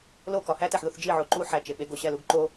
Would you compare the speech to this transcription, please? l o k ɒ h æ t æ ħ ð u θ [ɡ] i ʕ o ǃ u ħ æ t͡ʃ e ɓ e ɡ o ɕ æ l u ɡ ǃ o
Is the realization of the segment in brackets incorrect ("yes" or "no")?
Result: yes